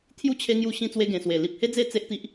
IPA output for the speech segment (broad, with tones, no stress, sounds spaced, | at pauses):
t̪ʰ j u˦ t͡ɕʰ e˧ ŋ j u˧ ɕ ĩ˧ t͡s w e˧ ɡ ẽ˨˩ s w e˨˩ l i˨ p̚ h e˦ d͡z e˥˧ t͡s e˦ ʔ t̪ i˦ ʔ